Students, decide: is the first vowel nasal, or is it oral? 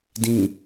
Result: nasal